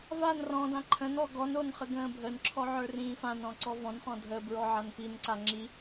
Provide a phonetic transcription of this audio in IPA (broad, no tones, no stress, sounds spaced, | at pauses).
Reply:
v a n r ɔ̃ d ã ǃʰ ə̃ n ɔ ɡ ɔ n o n χ ə ɡ ə̃ː bʱ ə n ǁʰ ɔ ʕ ə˞ r ĩː f ã n ɔ̃ ǀ ɔ v ɔ̃ n χ ɔ̃ dʱ ə b ɹ ɔ ʕ a n p i n ǀ a ŋ͡ǁ i